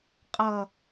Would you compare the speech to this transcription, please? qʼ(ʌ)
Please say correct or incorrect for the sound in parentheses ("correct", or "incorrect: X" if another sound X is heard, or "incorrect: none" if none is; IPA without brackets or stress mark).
correct